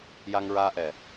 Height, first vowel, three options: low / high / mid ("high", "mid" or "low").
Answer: low